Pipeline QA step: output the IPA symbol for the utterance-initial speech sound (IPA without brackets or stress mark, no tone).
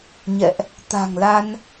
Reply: ɲ